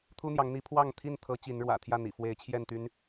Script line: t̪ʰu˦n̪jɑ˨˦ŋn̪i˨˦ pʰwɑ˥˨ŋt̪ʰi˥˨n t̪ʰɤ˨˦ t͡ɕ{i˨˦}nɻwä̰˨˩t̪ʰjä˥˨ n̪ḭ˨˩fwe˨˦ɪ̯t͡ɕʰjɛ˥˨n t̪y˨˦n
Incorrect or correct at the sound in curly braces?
correct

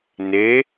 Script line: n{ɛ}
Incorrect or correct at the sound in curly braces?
incorrect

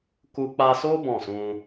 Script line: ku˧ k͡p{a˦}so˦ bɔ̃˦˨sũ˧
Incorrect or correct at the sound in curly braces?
incorrect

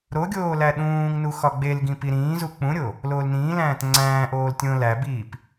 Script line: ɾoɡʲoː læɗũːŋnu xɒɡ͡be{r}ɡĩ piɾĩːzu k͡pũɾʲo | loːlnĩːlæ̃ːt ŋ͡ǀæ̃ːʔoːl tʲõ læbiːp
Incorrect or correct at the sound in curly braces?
incorrect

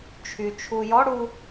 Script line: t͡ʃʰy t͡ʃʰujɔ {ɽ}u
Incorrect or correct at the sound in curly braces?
correct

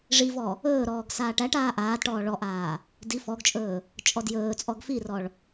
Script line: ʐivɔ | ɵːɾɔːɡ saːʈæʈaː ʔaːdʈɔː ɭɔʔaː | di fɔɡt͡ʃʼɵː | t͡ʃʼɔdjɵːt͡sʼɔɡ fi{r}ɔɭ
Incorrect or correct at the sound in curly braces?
correct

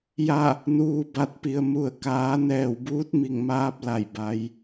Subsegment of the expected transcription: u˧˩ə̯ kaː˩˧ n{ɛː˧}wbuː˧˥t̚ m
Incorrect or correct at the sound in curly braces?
incorrect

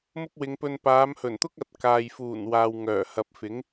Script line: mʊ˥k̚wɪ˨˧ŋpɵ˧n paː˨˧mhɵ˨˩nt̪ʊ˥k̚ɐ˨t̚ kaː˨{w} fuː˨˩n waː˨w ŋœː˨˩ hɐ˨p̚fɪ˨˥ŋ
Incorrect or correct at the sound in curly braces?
incorrect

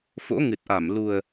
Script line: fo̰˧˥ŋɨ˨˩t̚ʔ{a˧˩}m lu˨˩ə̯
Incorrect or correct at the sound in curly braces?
correct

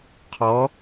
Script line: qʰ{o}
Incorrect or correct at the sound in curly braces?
incorrect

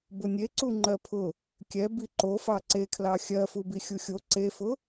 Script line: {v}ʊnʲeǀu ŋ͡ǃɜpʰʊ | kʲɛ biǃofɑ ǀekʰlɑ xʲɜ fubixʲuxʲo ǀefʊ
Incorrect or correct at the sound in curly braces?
incorrect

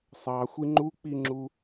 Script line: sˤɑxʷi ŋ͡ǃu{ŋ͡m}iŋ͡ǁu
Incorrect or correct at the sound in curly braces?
incorrect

